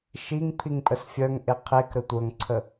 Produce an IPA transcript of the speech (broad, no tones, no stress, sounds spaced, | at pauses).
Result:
ʃ i ŋ pʰ i ŋ pʼ ə s fʲ œ ŋ ʔ e qʰ e k ɾ ə tʷ œ ŋ ǀʰ ə